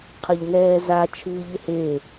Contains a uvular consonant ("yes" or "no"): yes